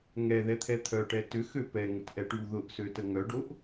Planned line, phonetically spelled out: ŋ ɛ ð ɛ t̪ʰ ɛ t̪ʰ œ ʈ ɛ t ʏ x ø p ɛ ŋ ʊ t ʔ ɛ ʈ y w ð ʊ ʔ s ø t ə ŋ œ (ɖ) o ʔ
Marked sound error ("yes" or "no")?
no